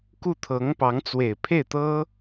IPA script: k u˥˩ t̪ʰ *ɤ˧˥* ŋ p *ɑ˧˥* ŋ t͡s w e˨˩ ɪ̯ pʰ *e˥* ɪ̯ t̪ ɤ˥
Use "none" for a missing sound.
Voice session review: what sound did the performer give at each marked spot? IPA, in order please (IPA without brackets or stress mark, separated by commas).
ɤ˧˥, ɑ˧˥, e˥˩